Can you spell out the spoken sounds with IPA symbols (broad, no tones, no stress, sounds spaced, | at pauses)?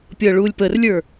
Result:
pʲ ɤ ɭ u lʲ p ə r lʲ ə˞